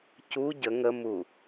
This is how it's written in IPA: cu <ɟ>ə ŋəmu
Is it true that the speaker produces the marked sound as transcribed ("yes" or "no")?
yes